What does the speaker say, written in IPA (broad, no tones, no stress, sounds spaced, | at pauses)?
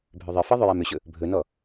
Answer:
bʱ ʏ ðˤ ɪ f i ðˤ ʏ j a m ʏ ɕ ɵ | bʱ ɵ n ɔ